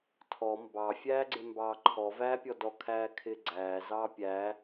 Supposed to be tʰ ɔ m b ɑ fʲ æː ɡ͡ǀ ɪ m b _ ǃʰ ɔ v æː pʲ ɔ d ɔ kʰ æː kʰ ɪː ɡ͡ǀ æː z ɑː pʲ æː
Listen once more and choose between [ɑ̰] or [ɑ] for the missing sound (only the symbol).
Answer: ɑ